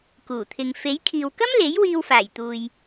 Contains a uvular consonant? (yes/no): no